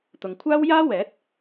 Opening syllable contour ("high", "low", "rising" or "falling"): low